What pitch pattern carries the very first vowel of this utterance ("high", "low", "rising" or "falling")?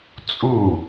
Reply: falling